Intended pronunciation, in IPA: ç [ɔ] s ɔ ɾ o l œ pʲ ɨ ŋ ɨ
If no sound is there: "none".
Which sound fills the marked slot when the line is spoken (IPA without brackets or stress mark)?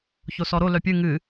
o